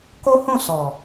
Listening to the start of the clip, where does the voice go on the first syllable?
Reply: high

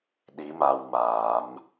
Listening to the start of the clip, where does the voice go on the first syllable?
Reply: rising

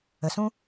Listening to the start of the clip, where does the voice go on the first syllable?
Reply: low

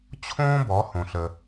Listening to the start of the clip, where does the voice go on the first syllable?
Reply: high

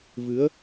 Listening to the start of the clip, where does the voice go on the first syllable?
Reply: rising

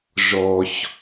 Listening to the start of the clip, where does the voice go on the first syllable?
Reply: low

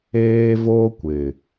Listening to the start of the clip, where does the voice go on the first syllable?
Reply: high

